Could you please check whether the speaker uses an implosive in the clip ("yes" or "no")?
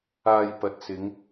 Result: no